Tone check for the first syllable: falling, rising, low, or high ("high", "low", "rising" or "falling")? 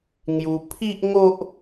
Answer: high